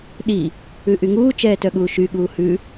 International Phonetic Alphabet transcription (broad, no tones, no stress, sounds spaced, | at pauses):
ɗ i | ʉ ʔ y ŋ uː t͡ʃ ɛː t œ ɠ uː ʃ y ɠ uː h ʉ